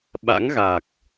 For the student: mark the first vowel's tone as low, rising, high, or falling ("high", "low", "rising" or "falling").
rising